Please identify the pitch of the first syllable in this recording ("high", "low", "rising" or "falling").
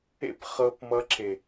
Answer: high